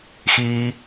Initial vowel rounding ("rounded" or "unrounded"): unrounded